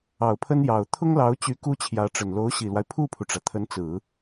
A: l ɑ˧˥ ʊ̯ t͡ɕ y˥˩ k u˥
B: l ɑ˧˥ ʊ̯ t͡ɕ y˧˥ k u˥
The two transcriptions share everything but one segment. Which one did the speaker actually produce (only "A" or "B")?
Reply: B